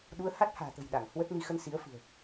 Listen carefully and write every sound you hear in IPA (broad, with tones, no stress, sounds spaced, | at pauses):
ɗ u˨˦ ə̯ h a˦˥ t̚ h a̤ː˨˩ t̪ ə̤˨˩ j ɗ a˧˩ ŋ h w ə˦˥ t̚ n i˧ x ə˧ n s i˨˦ ə̯ f ɨ̤˨˩ ə̯